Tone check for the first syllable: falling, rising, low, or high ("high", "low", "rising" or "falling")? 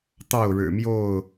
falling